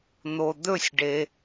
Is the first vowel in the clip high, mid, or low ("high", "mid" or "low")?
mid